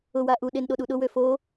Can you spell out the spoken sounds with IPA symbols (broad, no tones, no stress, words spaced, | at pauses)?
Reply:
ʊwa ʔuɗen ɗoɗuɗʊwø fo